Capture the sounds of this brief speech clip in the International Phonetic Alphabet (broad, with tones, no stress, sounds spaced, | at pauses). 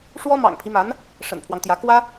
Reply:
ʂ w ɔ˥ m ɑ̰˨˩ ŋ pʰ i˦ m a˧˥ n | ʂ ə̰˨˩ n pʰ w ɑ˦ ŋ t̪ j ä˧˥ k w ä˥